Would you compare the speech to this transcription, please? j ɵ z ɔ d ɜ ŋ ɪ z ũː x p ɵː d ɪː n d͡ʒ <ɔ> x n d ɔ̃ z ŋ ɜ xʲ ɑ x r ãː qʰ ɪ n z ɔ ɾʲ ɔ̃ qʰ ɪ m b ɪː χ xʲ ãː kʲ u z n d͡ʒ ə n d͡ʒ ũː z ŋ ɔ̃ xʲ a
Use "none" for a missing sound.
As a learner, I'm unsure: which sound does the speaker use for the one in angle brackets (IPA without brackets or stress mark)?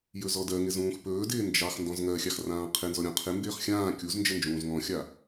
ɑ